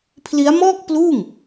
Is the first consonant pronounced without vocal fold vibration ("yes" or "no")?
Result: yes